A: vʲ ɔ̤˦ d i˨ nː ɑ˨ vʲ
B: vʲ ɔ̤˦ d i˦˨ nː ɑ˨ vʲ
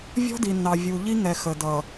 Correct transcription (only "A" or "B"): A